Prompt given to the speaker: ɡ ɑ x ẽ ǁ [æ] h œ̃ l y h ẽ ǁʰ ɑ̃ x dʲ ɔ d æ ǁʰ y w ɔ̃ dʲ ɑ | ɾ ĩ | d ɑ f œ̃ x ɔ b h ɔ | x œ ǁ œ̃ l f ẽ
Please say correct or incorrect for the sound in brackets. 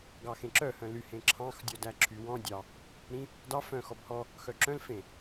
incorrect